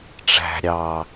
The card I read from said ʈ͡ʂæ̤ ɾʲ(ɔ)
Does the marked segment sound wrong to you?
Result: yes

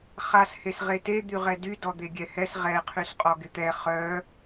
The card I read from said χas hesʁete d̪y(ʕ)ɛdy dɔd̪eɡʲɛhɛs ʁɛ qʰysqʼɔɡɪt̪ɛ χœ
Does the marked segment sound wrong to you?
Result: yes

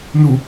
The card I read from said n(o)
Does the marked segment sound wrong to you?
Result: yes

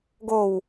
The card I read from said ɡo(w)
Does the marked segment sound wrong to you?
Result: no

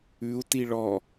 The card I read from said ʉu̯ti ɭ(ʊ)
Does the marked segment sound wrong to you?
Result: yes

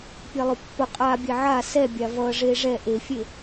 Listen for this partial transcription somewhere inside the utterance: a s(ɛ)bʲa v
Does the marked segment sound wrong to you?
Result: no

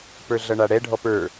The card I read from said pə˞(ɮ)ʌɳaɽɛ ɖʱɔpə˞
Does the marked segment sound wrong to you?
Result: no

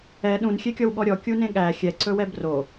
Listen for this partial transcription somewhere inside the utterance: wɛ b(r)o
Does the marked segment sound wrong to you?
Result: no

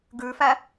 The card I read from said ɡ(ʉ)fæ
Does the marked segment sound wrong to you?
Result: no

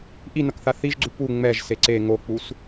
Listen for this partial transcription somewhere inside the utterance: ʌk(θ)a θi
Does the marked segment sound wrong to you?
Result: no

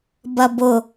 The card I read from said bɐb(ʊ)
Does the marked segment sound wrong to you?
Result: no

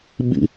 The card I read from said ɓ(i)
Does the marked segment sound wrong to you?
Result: yes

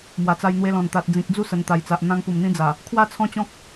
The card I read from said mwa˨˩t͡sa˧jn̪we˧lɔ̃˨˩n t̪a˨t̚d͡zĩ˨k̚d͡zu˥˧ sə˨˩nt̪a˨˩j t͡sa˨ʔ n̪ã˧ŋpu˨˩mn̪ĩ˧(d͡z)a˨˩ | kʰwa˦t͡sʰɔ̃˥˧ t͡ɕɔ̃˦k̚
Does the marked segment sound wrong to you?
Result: no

